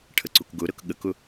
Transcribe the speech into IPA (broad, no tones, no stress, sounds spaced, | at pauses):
ʈʰ ə ǀ u k ɡ ʊ ɾ ɤ k ɠ ə k ʊ